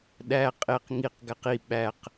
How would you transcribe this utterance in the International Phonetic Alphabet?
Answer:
ɗ æ qʼ e q ŋ i q ɡ æ q i ɓ æ q

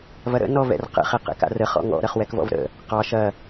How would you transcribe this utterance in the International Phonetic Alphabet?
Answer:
v ɐ ɾ ə̰ n ɔ v ɛ̰ r q ə̰ χ ɛ q ɛ̰ k a̰ r ə χ ɔ̰ ŋ ɔ̰ ɾ ɐ χ w ɛ k v ɔ̰ v ɾ ə̰ | q ɑ ʃ ɐ

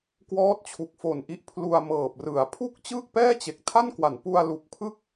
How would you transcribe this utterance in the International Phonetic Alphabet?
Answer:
k w ɔː˦˥ t̚ t͡ɕʰ u˨˩ k̚ f o˨˩ n ʔ i˦˥ ʔ pʰ l u˧ a̯ m ɤː˨˩ p̚ r ɯ˩˦ a̯ pʰ u˥˩ k̚ t͡ɕ ɯː˥˩ k̚ p ɛː˥˩ t͡ɕ e˨˩ k̚ tʰ a˥˩ n k w a˩˦ n p u˧ a̯ l u˨˩ k̚ pʰ ɯ˥˩ k̚

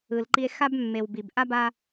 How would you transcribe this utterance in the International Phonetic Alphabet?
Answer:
ɯ˩ l ǃ i˧ e̯ x a˥ b mː e˩ w b i˩ b ʔ a˥ b a˧

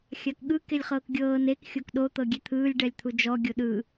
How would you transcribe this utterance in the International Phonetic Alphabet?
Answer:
xʲ a k ɠ ɯ k e lʲ χ ɤː k ɡʲ ɤː n e k xʲ o k ɗ o t̪ ɤ ɡʲ e t̪ʰ ɯː lʲ ɖ ɛ lʲ t̪ʰ u d͡ʒ ɔ ɡʲ o ɗ ɯ

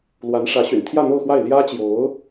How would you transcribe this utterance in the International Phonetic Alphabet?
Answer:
l w a˧˥ n ʂ ä˧˥ ɕ y̰˨˩ n t̪ʰ j ä˥˧ n̪ o˥˧ ʊ̯ x w a˥˩ ɪ̯ l j ä˥ t͡ɕ j o˧˥ ʊ̯

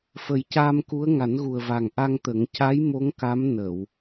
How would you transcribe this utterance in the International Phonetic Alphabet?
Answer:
f ə˨˩˦ j c aː˧ m k u˧˥ ə̯ ŋ a˨˩˦ n ɣ u˨˩ ə̯ v a˨˩ ŋ ʔ a˧ ŋ t̪ ə˨˩˦ ŋ c a˧˥ j m o˧˥ ŋ k a˧˥ m n ə˨˩˨ w

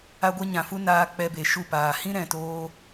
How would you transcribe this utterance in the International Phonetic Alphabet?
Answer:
a˧ ɡʷ ɛ˧ ɲ ã˨ f u˦ n aː˦ k͡p ɛ˧ b e˨ ʃ u˦˨ p aː˨ h ĩ˦ ɾ ɛ̃˨ t oː˧

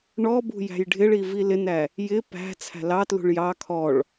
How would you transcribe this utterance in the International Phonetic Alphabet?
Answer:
ɳ ɔ b ṳ j æ̤ j ɖʱ ɪ ɭ i v i l ɪ n æ | j ɪ p æ̤ t͡sʰ æ̤ l ɑ t l ṳ ɭ j ɑ kʰ ɔ ɭ

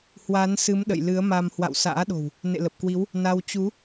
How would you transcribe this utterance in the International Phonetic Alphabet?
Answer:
h w a˨˦ n s ɨ˨˦ m ɗ ə̰˧˨ j l ɨ˨˦ ə̯ m a˧ m h w a̰˧˨ w s a̰ː˧˥ ɗ o̤˨˩ w | n ḛ˧˨ l ə˨˩ p̚ k w i˨˦ w | n a˧ w t͡ɕ u˨˦

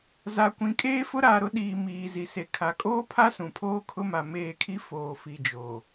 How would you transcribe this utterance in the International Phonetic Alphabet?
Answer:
z a˨ kʷ ĩ˨ kʼ eː˦ f ʊ˦ ɾ aː˨ ɾ ʊ˦ ɗ iː˨ m iː˨ z i˨ s e˨ kʰ a˨ kʼ oː˦ pʰ a˦ s ũ˨ pʰ oː˦ kʰ ʊ˦ m a˨ m eː˦˨ kʰ i˦ f oː˨ f i˨ d͡ʒ oː˨

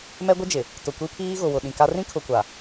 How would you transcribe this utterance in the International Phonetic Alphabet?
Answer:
m ɛ˦ ɡʷ ɪ˦ d͡ʒ ɪ˨ | t ʊ˨ kʷ i˦ pʰ iː˦ ɣ ʊ˨ w ʊ˨ ɗ ĩ˨ k a˦ r ĩ˦ kʰ ʊ˨ kʷ a˨

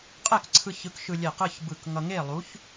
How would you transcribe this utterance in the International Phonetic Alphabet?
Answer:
qʼ ɛ˥˨ k ǀʰ ɯ˧ ç ɯ˨˥ k ʃ ɯ˧ lʲ e˧˩ q ɯ˥˨ ç b ɯ˧˩ k ŋ ʌ˧ ŋ e˥˨ lˠ u˨˥ ç

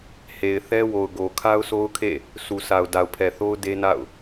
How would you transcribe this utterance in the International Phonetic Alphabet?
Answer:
h e˨ ɪ̯ θ ɛ˦ w o˨ ʊ̯ ɡ o˨ kʰ a˦ ʊ̯ sʰ o˦ ʊ̯ kʰ ḛ˦˨ | sʰ u˨ sʰ a˨ ʊ̯ d a˨ ʊ̯ pʰ ɛ˨ θ o˦ ʊ̯ d e˦ n a̰˦˨ ʊ̯

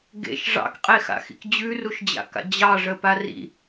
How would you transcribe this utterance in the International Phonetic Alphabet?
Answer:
ɡ ḛ ʃ ʐ ɑ̰ k qʼ e x a̰ x ḭ k d͡ʑ ʉ r u ʃ d͡ʑ a̰ k a̰ d͡ʑ ɑ ʐ ə p a r ḭ

